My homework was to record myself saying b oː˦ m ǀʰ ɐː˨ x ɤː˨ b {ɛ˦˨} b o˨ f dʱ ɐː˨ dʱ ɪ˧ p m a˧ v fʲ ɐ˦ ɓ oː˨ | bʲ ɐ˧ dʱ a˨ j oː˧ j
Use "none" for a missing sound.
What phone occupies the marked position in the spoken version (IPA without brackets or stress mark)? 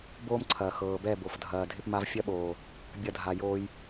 ɛ˦˨